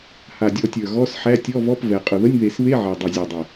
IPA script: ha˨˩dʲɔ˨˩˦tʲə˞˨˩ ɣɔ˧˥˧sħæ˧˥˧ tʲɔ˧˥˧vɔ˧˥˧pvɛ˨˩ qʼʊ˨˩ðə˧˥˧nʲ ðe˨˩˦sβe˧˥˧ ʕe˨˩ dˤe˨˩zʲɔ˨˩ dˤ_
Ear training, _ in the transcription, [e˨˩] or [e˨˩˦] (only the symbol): e˨˩